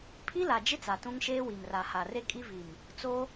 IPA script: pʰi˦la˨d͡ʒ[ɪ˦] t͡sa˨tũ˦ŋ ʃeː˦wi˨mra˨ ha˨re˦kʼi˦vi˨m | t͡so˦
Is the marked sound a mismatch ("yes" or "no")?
no